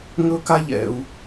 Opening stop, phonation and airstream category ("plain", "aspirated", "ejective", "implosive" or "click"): plain